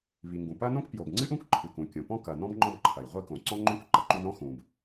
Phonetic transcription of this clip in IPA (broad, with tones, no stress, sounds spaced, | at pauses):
β i˩ ŋ ɡ ũ˩ p ɐ˥ n õ˥ k p j o˩ b ŋ͡ǀ ɨ˥ ʔ ũ˥ k ǃʰ ɨ˩ k ũ˩ kʲ õ˩ p ɔ̃˥ k ɐ˩ n ɔ̃˥ b ŋ͡ǃ ɔ̃˥ b ǃʰ ɐ˩ j ʁʷ i˥ k õ˩ ǀ ɔ̃˥ ŋ͡ǃ õ˥ k ǃ ɐ˩ ǃ u˥ n ɾ ɔ̃˥ x ũ˩ b